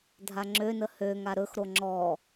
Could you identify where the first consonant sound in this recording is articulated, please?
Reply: alveolar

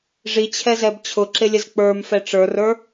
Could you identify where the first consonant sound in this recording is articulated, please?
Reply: retroflex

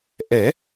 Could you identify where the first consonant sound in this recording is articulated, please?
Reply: glottal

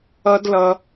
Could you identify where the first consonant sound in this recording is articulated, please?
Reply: alveolar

